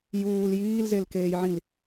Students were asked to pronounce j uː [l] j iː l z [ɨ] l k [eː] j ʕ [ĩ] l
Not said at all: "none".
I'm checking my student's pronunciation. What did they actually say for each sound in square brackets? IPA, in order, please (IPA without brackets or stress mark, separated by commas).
l, e, eː, ĩ